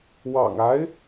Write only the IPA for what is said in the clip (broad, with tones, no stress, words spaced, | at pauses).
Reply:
wɑ̰˨˩ŋ a˧˥ɪ̯